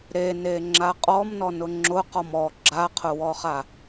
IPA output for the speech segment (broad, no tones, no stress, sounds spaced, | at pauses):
ɾ e n e ŋ͡ǁ a qʼ ɔ m n ɔ n ʊ ŋ͡ǁ ʊ q ɔ m ɔ ɡ͡ǁ a qʰ ʊ w ɔ χ a